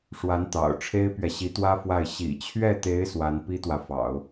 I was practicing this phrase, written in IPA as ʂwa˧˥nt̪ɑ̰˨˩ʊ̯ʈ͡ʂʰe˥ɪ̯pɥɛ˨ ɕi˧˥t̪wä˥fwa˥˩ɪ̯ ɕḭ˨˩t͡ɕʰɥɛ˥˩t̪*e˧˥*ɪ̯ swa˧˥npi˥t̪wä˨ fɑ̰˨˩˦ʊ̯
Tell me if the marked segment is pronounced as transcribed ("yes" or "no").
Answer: yes